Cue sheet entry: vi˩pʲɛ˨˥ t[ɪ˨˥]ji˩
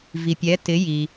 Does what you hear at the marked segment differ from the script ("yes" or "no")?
no